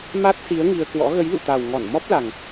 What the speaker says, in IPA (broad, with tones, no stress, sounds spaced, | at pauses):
m a˦˥ t̚ s i˨˦ ə̯ ŋ i˧ ə̯ k w ɔ̰˧˥ ɣ ə˨˦ j l ṵ˧˨ t̪ a˨˩ w ŋ ɔ˧˩ n m ɔ˦˥ p̚ l a˨˩ ŋ